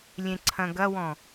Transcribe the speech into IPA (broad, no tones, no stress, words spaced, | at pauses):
lʲẽǀʰɐ̃ɡɐwɔ̃